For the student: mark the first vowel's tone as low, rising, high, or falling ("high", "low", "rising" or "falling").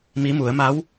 rising